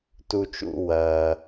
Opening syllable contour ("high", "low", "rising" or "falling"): high